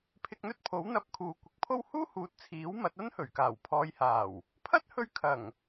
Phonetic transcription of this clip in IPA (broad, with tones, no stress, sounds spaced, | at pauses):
pʰ ɪ˧ k̚ n̪ ɵ˥ t̚ pʰ o˨˥ w n̪ ɐ˧ p̚ kʰ uː˨ kʷ ɪ˨˥ k̚ pʰ o˥ w h uː˥ h uː˨ t̚ t͡sʰ iː˨˥ w m ɐ˨˥ t̚ ɐ˥ n h ɵ˨˩ ɥ k aː˨˩ w pʰ ɔː˨ j h aː˨˩ w | pʰ ɐ˥ t̚ h ɵ˧ ɥ kʰ ɐ˨˩ ŋ